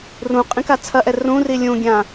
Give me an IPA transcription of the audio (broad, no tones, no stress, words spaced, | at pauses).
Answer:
rũ qʼĩkat͡sʰɐʔɛ rũri lʲũɡʲã